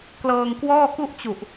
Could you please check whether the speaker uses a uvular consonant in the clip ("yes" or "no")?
no